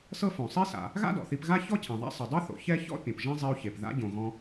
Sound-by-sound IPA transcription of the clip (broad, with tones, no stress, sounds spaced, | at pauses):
s ɤ˥ f õ˩ sˤ i˥ s a̰˩ | ɣ a̰˥ d ɔ̰˩ θ i˧ p ɣ a˥ ç ɔ˥ cʰ ẽ˩ ðˤ a̰˥ sˤ ɯ˩ dˤ ɯ˥ θ o̰˩ ç ɛ˥ ç ɔ̰˥ pʲ ɔ̃˩ p ʒ ẽ˥ zˤ i˧ u̯ ç e˩ p ð a̰˧ ɟ õ˩ ɣ ɔ̃˧